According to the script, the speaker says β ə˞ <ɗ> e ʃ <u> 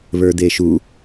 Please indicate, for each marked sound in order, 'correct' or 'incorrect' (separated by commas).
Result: incorrect, correct